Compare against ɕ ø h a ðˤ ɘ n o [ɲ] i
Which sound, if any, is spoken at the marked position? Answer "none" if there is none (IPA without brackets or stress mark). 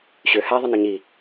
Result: ɲ